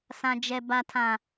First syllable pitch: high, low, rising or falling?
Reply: low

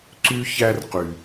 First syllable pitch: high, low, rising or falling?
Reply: high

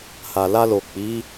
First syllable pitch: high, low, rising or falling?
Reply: low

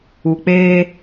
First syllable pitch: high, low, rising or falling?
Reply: low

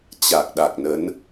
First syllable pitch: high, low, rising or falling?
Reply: low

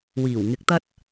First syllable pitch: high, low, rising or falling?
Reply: low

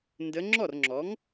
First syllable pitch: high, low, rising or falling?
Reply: rising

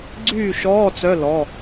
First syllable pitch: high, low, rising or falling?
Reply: falling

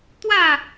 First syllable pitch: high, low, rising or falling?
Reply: falling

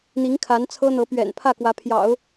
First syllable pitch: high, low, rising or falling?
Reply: rising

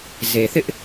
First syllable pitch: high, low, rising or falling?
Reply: low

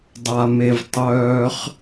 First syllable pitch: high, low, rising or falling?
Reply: low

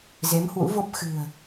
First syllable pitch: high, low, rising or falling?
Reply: rising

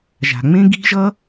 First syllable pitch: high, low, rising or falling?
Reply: low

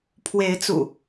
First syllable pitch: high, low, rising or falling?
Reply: rising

